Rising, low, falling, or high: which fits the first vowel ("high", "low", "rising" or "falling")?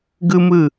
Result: high